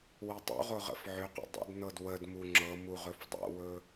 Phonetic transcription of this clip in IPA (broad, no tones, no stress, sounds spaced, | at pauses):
w ɵ tˤ ṵ ʁ o ʁ ə̰ f ʕ ʏ q ə̰ dˤ ə̰ d n ɤ d w ə d m u ŋ͡ǁ ɤ m u ʁ ɵ f dˤ o̰ w ɵ